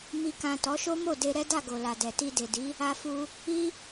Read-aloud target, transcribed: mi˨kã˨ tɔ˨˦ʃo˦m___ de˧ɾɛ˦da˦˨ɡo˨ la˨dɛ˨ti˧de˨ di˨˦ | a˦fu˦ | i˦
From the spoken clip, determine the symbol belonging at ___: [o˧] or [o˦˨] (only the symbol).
o˦˨